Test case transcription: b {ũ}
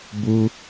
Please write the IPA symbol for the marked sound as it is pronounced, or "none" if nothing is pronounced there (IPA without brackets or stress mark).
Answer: u